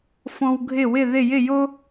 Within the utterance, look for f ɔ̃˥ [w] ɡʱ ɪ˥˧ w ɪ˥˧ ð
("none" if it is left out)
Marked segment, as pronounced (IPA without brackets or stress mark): w